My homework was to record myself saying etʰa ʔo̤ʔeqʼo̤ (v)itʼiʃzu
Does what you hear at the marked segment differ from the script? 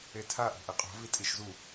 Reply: no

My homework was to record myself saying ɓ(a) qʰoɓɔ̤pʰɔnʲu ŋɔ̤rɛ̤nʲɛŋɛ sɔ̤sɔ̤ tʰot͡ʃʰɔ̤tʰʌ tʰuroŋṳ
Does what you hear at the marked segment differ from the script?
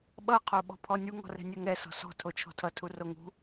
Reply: yes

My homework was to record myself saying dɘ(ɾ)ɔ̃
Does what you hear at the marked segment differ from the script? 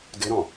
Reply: no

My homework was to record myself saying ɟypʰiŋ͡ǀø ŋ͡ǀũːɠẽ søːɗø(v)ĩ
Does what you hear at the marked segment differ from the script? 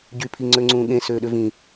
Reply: no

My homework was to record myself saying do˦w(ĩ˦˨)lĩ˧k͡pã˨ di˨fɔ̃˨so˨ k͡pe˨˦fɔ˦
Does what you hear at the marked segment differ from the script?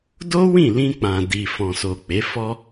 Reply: no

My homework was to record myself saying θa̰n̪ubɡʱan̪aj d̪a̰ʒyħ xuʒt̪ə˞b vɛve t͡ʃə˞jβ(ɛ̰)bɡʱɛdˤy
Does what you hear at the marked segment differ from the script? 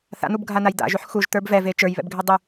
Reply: no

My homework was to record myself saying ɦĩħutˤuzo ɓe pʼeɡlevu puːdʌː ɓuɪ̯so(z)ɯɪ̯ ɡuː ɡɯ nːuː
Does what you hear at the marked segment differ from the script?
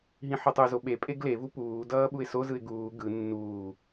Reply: no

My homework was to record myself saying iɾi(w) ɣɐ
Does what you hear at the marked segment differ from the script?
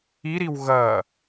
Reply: no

